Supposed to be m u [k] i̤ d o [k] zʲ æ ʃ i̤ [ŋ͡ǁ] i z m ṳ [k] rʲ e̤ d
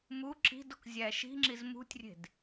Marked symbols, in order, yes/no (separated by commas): no, yes, yes, no